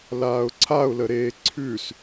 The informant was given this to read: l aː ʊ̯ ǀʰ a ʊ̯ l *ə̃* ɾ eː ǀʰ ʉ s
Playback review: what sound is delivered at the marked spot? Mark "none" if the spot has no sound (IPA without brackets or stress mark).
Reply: ə